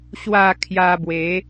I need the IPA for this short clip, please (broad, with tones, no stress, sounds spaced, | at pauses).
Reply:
ɕ w a˥˧ kʰ j a˧ b w e˨˦